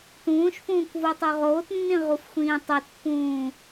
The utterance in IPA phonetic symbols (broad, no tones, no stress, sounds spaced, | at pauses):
t ũː ʃ f ũː kʷ v o tˤ o ʁ oː t nː ĩ ʁ u f xʷ ĩː tˤ o t pː ũː